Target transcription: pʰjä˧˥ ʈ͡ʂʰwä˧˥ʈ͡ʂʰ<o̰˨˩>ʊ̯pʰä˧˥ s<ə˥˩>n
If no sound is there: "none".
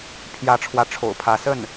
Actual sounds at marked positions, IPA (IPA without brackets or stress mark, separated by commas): o̰˨˩, ə˥˩